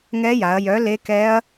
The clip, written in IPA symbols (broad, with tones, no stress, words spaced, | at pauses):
ŋɛ˦˥ja˩˧ɐ̯ jœ˨˥ le˦˥kɛ˦˥ɐ̯